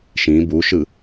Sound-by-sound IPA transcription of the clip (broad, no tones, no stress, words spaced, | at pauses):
ʃĩ buʃɯ